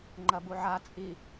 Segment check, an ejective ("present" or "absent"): present